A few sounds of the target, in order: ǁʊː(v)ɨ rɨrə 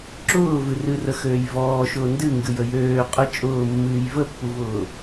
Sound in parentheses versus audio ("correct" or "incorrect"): correct